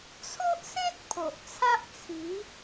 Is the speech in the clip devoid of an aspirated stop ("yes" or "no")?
no